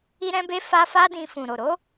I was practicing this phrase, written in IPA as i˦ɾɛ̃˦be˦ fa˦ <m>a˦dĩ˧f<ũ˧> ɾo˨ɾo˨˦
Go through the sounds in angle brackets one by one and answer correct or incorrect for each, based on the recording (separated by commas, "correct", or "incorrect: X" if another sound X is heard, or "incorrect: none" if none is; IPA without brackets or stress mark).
incorrect: f, incorrect: ũ˨